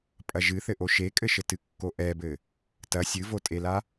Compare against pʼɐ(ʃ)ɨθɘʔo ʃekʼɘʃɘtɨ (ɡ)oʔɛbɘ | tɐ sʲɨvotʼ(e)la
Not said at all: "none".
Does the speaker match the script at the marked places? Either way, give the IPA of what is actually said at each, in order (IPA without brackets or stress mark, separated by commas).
ʒ, kː, e